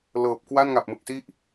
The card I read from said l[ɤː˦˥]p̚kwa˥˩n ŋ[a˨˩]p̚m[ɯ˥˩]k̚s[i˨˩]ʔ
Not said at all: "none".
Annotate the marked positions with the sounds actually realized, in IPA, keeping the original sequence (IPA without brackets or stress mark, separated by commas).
ɤː˨˩, a˨˩, ɯ˨˩, i˥˩